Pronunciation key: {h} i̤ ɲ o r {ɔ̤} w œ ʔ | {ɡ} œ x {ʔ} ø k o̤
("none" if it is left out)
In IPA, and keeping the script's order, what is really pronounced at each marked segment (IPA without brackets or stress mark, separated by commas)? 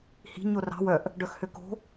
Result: h, ɑ̤, ɖ, h